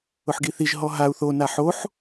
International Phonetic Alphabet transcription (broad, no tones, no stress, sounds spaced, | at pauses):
ʊ ħ ɡ i θ i ʒ ɦ ɔ ɦ a u̯ θ o n a ħ o ħ